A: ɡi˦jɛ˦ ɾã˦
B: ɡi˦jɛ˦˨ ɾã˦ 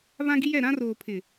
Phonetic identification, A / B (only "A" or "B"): B